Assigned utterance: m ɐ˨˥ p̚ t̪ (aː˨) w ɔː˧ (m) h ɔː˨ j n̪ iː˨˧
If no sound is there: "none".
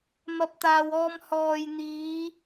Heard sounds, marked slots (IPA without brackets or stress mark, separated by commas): aː˨, m